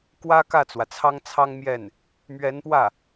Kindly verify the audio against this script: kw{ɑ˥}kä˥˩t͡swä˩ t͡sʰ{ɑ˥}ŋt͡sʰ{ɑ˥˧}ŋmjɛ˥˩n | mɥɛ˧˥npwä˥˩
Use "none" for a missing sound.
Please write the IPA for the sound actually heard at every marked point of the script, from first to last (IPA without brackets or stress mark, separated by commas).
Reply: ä˥, ɑ˥, ɑ˥